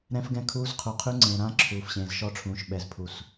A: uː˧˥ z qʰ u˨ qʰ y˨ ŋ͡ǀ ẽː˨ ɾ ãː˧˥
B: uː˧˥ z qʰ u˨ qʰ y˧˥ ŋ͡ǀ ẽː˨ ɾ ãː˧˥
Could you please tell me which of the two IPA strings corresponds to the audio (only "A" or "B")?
B